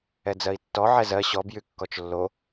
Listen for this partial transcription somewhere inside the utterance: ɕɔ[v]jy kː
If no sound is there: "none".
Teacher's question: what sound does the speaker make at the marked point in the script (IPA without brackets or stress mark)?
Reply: b